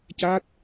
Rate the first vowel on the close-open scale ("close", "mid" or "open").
open